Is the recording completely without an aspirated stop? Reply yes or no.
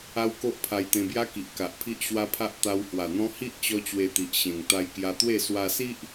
no